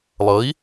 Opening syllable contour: rising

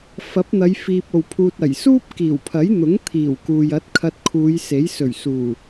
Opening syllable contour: rising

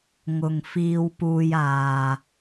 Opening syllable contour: low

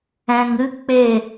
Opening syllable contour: low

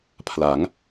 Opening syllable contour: rising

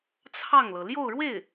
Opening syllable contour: falling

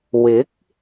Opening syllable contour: rising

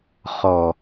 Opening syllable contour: low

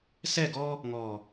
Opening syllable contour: falling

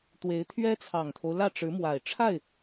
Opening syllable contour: rising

